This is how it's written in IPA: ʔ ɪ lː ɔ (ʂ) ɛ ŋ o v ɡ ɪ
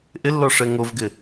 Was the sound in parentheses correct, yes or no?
yes